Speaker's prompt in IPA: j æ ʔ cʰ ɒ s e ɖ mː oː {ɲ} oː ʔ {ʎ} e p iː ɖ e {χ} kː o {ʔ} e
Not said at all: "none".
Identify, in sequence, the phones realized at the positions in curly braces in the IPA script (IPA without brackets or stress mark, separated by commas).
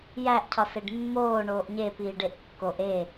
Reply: ɳ, ɲ, ʔ, ʔ